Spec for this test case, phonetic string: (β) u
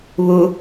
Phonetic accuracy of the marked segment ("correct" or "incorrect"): correct